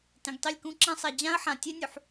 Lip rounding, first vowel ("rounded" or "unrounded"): unrounded